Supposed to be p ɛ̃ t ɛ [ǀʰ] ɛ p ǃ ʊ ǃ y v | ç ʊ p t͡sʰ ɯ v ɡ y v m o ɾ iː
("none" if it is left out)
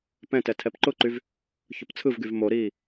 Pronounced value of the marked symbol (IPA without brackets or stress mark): tʰ